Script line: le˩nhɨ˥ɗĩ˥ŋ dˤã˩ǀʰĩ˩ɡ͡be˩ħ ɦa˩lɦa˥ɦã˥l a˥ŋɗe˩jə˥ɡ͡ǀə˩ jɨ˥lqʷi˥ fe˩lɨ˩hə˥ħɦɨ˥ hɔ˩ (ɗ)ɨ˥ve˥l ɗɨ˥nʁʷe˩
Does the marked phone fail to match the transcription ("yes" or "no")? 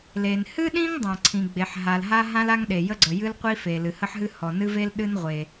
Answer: yes